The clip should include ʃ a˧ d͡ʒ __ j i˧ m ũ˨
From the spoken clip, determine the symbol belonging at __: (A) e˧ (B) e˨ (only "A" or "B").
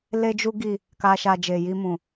B